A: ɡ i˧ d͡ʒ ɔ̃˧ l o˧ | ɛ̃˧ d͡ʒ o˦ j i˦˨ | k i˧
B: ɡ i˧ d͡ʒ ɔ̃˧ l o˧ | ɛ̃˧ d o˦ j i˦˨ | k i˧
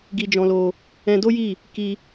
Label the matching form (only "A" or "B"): B